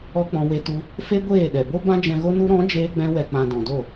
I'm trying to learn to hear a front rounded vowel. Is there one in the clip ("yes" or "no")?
no